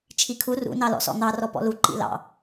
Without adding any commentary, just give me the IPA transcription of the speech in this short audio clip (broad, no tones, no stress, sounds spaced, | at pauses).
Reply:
t͡ʃʰ i kʰ u r ṵ n ɑ l ɔ̰ s ɔ̰ n̪ ɑ r ɔ p ɔ̰ l u ǃ ḭ l ɑ̰